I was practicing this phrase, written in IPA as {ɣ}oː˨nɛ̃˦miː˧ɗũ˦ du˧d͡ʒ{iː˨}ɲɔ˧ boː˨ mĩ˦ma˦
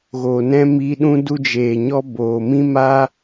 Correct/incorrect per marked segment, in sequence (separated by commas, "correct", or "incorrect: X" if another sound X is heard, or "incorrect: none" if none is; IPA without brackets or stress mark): correct, incorrect: eː˨